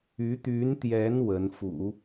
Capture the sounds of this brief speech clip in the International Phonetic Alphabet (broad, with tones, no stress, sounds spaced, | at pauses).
y˧˥ t̪ y˧˥ n t̪ j ɛ˧˥ n w ə˧˥ n f ṵ˨˩˦